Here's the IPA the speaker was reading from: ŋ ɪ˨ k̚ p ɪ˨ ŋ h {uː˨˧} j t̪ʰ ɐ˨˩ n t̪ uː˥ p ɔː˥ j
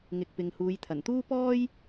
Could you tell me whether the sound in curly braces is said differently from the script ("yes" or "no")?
no